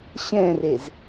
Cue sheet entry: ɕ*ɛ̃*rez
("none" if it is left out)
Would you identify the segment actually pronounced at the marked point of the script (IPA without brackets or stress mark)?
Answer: ɛ̃